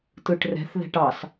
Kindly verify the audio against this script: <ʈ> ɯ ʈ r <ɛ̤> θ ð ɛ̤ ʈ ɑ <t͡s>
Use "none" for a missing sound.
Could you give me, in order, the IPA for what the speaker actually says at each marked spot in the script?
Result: t, ɛ̤, s

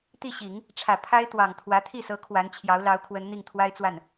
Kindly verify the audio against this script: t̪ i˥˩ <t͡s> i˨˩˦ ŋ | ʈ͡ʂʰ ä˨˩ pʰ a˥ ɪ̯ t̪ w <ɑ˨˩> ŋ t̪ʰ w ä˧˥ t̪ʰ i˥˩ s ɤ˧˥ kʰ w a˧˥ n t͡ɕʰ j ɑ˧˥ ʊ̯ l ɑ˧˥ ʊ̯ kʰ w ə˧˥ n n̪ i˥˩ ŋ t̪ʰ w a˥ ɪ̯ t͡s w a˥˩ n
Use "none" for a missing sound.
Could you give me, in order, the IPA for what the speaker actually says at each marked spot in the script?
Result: ɕ, ɑ˨˩

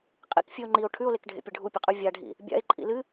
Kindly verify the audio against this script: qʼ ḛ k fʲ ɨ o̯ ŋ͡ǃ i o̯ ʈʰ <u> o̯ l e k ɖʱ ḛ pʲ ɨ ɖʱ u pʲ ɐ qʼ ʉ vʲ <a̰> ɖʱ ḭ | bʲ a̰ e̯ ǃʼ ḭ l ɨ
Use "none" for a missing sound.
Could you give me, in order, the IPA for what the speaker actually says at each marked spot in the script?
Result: ʉ, a

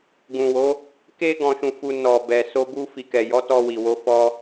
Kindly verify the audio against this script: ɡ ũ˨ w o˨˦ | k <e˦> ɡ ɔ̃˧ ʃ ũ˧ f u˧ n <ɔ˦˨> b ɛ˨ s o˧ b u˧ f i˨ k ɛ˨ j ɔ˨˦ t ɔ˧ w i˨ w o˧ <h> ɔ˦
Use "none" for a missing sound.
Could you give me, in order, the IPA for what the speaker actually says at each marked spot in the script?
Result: e˦, ɔ˨, f

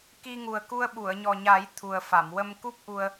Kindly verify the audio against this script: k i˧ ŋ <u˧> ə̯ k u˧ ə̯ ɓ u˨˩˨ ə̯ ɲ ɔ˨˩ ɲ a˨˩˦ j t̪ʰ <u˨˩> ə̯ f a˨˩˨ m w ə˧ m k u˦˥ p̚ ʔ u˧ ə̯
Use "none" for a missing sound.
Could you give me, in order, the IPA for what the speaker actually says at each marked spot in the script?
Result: u˨˩, u˨˩

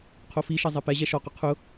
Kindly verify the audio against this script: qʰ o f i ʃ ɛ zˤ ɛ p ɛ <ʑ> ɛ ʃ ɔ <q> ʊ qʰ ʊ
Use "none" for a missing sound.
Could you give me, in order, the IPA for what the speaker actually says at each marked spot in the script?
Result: ʑ, q

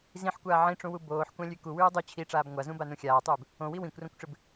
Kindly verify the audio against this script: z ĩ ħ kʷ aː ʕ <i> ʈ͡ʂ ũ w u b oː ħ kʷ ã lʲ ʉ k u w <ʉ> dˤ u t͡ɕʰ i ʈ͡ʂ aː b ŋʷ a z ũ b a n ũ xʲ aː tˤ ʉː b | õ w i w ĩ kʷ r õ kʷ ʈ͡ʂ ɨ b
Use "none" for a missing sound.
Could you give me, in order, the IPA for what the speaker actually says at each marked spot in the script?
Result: ĩ, ʉː

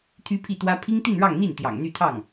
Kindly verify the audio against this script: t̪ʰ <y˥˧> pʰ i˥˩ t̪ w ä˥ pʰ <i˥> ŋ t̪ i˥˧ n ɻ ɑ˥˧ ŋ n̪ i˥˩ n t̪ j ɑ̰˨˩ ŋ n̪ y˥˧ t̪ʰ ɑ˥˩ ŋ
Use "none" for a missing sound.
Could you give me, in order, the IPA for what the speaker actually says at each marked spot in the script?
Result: y˥, i˥

